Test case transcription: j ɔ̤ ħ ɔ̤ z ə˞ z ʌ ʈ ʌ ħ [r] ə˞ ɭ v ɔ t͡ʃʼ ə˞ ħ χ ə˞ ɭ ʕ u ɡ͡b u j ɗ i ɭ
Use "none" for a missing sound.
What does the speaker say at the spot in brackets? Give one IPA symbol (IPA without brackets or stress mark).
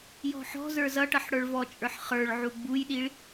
ɽ